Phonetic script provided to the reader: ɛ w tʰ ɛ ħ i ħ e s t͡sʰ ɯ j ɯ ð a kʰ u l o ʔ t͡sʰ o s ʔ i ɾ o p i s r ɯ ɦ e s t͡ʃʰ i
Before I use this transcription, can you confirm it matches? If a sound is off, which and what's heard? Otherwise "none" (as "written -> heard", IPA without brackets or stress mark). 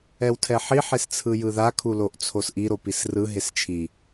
none